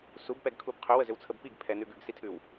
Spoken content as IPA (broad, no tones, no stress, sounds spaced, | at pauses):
s u b p ɛ ɡ kʰ u b qʰ ʏ w ə z ʏ w t͡sʰ ə b p i ɡ pʰ ɛ n ʉ ɡ ʉ ɡ s i tʰ ʉ w